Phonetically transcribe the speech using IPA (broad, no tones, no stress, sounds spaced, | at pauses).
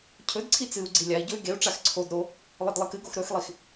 cʰ ɵ d ǀʰ i t͡s ɨ u̯ ɡ͡ǀ i lʲ a i̯ ɟ o y̯ ɡ e u̯ ʈ͡ʂ a x ǀʰ o d ɾ o | lˠ e d lˠ i k ɨ ɡ o x ɾ ɵ x lˠ i x